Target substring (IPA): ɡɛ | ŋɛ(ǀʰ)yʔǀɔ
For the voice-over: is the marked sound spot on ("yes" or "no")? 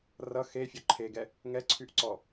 yes